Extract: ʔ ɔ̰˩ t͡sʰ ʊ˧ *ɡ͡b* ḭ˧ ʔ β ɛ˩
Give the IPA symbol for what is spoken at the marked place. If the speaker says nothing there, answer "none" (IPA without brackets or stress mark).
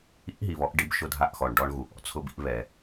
b